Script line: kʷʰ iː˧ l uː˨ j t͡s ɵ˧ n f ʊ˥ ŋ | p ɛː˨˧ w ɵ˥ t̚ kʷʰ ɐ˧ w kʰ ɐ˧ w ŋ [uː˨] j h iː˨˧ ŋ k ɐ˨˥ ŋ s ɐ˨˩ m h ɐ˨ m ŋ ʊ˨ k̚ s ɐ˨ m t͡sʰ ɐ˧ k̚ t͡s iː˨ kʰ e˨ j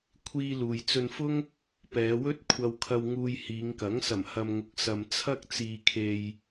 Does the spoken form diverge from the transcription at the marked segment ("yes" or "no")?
yes